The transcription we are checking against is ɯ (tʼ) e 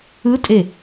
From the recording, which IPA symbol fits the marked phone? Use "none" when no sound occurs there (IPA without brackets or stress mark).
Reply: tʼ